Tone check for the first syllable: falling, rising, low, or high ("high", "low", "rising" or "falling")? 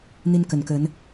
high